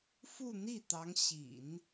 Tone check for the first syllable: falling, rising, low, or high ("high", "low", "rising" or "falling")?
falling